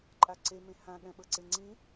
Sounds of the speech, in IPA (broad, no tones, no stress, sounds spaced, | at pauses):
ǃʼ a ǀ e m ẽ h ã ɠ ɛ̃ ɓ ɤ ǀ e ŋ͡ǀ ĩ